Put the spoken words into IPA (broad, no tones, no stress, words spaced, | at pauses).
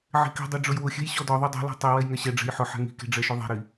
ʕe̤ki̤dˤe ɖ͡ʐʊjwʊxʲɛ̤j ɕɔdɔðˤy dˤe̤lɔ̤ tˤi wɛjŋɛɕɛɖ͡ʐɛ̤j ħʊħɛ̤ ŋi̤ke̤ ɖ͡ʐɛʃyðˤe̤ɾi